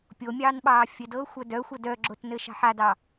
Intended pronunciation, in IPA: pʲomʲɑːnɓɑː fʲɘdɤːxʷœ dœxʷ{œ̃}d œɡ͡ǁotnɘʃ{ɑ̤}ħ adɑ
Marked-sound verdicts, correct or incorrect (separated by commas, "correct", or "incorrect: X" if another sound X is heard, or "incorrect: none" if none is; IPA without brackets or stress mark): incorrect: œ, correct